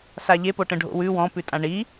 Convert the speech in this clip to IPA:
s a ʎ e p o ʈ ə̃ ɖʱ o̰ w ʉ w ɔ̃ p ʉ tʼ ã ɳ i

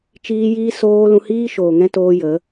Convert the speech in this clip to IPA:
t͡ʃ iː˦ j iː˦ s oː˦ l ũ˧ h iː˦ ʃ oː˨ ŋ ɛ̃˦ t oː˦ j ə˨˦

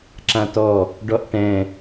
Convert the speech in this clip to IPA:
ǁ ã t ɔ | ɖ ɔ ʔ ʈ ɛ̃

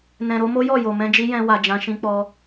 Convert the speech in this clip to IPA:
n ɛ̃˨ ɾ o˧ m o˦ j ɔ˦˨ j o˨ m ɛ̃˧ d͡ʒ i˦ j ɛ̃˧ w a˨ d͡ʒ ã˧ ʃ ĩ˦ k͡p ɔ˦

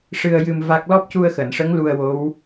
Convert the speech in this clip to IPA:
ʂ ɨ˧ ə̯ j ɨ˧ m v a˦˥ k̚ l ɔ˦˥ p̚ c u˧ ə̯ x əː˨˩˨ n ʂ ə˧˥ ŋ l u˧ ə̯ w o˧˥ w

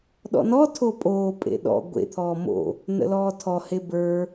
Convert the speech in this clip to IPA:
ɗ ɔ̰ n ɔ tʰ o pʼ oː pʼ ḛ ɗ ɔ̰ ɡʷ ḛ t̪ʰ ɔː m o̰ | n ə̰ l ɔː tʰ ɔ h e b ə˞

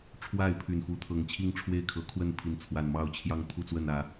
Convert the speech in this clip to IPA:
ʈ͡ʂʰ w a˥˨ ɪ̯ pʰ y˨˩ n f u˨˦ t̪ʰ ɤ˨˩ ŋ t͡ɕʰ i˥˨ ŋ ʈ͡ʂʰ w e˥˨ ɪ̯ kʰ ɤ˨˦ kʰ w ə˥˨ n pʰ i˨˦ n t͡sʰ w a˨˩ n m ɑ˥˨ ʊ̯ t͡ɕʰ j ɑ˥˨ ŋ t̪ʰ u˥˨ t͡s w ə˥˨ n ä˨˦

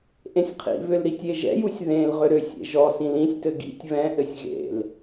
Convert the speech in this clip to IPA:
ʔ ẽ sʲ qʰ ḭ β ʏ l ɾ i tʲ e ʒ ɛ̰ j u sʲ ð ẽ l ʁ ʏ ɾ ʏ sʲ ḛ ʒ ɔ s ĩ l ĩ sʲ t ɘ ɡ ḭ tʲ β ɛ̃ ʔ ɘ sʲ ɣ ḛ l

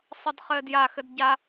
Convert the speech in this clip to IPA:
sˤ ʌ d χ ɘː d j a x ɘ d ɟ a

